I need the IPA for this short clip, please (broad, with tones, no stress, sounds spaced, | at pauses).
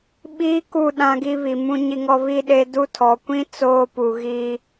ɓ iː˦ k u˦˨ ɗ ã˦ ɡ i˦ β i˨ m ũ˦ ɲ i˦ ŋ ɔ˦ β i˦ ɗ e˦ d u˦ tʰ ɔ˨ kʷ ĩ˦ t͡s oː˦ p u˨ ɣ iː˦